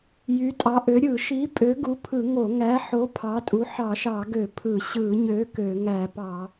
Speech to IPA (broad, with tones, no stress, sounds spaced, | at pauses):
j y˨˥ tʼ ɑ˨˥ ʔ ø˨˥ ɾʲ ɯ˧˩˧ ʃ i˨˥ pʼ ø˨˥ ɡ u˨˥ pʰ ɯ˧˩˧ ŋ o˧˩˧ ŋ æ˨˥ ħ o˨˥ pʰ ɑ˨˥ tʼ u˨˥ ħ ɑ˧˩˧ ʃ ɑ˧˩˧ ɡ ø˧˩˧ pʰ ɯ˧˩˧ ɕ ɯ˧˩˧ ɲ ø˨˥ k ø˧˩˧ ŋ æ˧˩˧ p ɑ˧˩˧